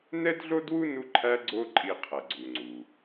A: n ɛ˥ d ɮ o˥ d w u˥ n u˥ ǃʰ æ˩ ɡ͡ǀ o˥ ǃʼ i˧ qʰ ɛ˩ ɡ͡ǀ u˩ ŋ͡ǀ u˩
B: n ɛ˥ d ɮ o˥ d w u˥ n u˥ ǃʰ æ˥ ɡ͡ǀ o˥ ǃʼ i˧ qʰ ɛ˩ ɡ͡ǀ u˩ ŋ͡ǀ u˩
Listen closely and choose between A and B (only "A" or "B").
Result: B